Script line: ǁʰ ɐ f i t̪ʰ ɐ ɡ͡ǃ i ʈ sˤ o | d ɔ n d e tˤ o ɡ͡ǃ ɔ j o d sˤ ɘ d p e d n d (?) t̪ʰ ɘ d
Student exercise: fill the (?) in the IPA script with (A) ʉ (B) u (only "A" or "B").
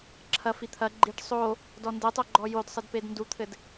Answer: B